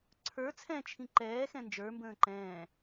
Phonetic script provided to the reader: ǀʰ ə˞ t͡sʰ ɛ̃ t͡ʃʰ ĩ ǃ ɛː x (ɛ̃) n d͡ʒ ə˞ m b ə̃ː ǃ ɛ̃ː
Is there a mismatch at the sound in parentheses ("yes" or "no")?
no